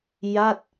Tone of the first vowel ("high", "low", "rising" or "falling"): falling